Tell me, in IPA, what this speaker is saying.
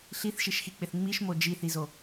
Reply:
ɬiθʃiʃxik͡pɪθ ŋ͡miʃmo d͡ʒiθizo

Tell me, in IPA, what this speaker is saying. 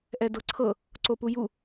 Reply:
ʔɛdɤǀʰɤ | ǀopuju

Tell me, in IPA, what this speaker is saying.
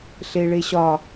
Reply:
ɬeɭeɕɒ

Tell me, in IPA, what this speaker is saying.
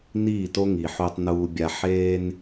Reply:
niː˦˨to˦ŋi˨ ħu˨tˤnuː˨bʲa˨ ħeː˦n

